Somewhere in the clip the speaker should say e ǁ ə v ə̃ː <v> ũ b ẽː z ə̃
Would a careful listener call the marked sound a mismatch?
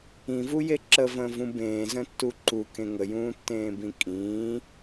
no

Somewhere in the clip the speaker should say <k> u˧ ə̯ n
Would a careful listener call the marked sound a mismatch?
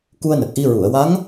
no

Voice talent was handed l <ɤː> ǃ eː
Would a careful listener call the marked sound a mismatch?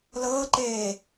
no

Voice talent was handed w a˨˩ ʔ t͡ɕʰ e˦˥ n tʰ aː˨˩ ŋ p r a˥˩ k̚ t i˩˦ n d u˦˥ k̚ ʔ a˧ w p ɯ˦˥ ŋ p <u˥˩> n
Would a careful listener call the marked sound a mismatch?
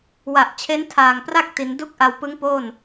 yes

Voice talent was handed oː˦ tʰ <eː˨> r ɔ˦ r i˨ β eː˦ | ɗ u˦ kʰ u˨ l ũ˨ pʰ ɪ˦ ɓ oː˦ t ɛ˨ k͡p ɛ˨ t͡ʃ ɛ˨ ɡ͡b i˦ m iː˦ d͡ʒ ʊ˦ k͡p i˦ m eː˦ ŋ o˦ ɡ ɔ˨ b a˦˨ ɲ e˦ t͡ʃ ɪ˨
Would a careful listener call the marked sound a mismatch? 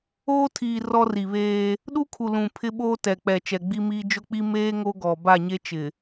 yes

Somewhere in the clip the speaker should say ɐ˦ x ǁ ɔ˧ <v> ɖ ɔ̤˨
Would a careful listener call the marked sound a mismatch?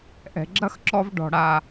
no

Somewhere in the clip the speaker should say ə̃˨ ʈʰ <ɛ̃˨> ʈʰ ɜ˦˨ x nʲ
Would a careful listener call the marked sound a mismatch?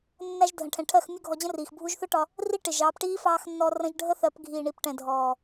no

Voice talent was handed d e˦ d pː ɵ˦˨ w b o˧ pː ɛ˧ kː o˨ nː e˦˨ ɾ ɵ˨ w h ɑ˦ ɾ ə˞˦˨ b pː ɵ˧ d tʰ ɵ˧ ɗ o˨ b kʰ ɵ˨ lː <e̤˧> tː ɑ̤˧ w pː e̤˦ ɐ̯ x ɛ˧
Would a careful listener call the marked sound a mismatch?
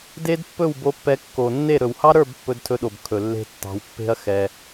no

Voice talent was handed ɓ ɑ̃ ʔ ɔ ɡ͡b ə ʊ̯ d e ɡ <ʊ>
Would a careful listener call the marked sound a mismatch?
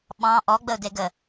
yes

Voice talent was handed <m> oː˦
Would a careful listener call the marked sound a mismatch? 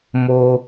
no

